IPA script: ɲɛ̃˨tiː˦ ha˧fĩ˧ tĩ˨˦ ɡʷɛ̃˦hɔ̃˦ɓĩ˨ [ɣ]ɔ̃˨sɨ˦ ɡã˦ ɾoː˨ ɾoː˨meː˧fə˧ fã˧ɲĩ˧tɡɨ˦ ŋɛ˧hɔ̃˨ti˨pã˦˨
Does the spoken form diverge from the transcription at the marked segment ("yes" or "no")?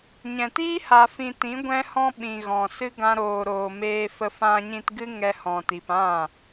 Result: no